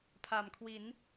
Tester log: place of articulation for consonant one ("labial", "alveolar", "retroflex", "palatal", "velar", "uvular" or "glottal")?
labial